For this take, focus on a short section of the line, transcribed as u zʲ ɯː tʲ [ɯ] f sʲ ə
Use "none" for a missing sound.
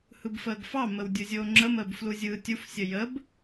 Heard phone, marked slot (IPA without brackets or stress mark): u